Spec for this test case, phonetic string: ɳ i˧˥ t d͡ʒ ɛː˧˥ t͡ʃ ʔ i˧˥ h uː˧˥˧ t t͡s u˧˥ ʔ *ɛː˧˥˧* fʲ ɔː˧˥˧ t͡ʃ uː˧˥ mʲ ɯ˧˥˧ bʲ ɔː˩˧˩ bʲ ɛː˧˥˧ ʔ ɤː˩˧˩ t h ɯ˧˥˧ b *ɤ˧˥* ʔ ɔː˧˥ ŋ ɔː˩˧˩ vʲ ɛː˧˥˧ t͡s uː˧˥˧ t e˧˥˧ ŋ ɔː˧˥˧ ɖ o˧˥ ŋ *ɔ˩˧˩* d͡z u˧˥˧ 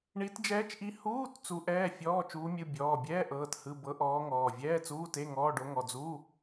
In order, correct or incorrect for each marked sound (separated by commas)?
correct, correct, correct